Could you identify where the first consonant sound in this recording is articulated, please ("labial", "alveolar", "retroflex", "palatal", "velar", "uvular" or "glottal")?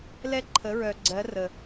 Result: alveolar